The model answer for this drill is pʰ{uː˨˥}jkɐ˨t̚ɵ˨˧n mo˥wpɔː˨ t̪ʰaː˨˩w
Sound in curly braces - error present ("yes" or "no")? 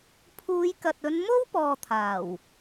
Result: yes